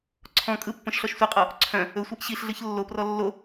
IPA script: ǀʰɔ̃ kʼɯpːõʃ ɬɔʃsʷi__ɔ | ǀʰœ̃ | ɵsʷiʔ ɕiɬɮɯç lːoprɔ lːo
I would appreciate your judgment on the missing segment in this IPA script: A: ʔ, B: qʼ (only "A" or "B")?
B